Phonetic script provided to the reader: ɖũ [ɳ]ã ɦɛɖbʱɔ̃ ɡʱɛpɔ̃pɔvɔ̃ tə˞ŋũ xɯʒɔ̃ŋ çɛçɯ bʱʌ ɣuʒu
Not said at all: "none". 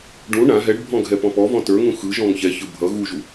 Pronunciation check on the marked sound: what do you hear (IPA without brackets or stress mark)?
ɳ